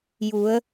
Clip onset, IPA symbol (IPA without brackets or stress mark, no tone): j